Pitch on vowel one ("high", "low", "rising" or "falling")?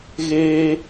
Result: high